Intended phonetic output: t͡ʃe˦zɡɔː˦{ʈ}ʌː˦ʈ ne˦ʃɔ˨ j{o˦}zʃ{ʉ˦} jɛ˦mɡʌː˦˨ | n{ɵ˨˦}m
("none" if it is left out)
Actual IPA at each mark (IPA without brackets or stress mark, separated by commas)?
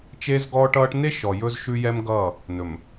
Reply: ʈ, ɵ˦, ʉ˦, ɵ˨